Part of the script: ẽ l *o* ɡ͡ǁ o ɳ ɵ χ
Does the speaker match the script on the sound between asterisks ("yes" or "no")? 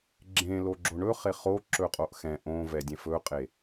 yes